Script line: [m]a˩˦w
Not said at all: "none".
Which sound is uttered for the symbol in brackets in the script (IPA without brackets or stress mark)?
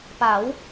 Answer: p